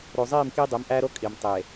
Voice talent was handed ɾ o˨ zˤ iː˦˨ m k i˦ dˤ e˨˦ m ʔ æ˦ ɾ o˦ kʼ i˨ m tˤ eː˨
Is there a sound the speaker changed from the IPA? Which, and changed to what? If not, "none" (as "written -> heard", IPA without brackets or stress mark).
none